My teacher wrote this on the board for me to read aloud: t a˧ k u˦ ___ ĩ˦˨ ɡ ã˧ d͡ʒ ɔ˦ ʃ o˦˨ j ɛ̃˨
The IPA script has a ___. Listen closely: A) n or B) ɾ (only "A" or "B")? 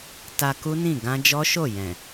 A